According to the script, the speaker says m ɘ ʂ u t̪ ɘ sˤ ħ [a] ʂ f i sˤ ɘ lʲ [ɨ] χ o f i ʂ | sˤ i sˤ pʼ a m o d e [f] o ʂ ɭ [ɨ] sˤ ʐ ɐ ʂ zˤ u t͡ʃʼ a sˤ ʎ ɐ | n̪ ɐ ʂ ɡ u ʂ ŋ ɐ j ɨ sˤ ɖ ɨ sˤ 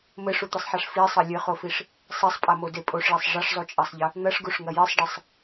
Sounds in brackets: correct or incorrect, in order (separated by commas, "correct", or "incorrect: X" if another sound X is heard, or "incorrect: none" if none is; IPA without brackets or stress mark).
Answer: correct, correct, incorrect: pʼ, incorrect: e